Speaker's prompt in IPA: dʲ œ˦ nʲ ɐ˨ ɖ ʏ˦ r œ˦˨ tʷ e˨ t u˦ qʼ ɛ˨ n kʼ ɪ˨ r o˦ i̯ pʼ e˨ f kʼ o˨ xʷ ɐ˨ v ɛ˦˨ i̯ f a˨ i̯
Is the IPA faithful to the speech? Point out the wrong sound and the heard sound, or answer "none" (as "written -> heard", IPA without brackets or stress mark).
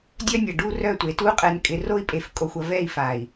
ʏ˦ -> u˦